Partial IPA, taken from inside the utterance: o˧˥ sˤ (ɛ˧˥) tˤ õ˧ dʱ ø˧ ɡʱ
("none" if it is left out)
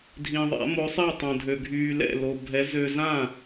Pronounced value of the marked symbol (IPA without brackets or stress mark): ɛ˥˨